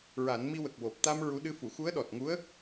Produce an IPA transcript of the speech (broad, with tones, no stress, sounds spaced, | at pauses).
ɹ a˨˩˦ n m i˧ w ə˨˩ k̚ w o˨˩ p̚ t̪ a˧ m ɹ u˧˥ ɗ ɨ˧˥ f u˨˩˨ x u˧˥ ə̯ ɗ ɔ˨˩ t̚ ŋ u˧˥ ə̯